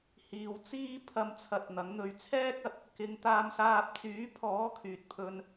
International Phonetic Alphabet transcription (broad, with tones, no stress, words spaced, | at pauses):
hiː˨wt͡siː˥ pʰɐ˧mt͡sʰɐ˨t̚ n̪ɐ˨˥ŋn̪ɵ˧ɥ t͡sʰɛː˥k̚ɐ˨t̚ | kɪ˨˧ŋ t̪aː˧msaː˧p̚ t͡syː˨˥pʰɔː˨˥ kʰyː˨t̚pʰɵ˧n